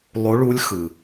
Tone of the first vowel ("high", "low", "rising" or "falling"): rising